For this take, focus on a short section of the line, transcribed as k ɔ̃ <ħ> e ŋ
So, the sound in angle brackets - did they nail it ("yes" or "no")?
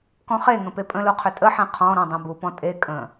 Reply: no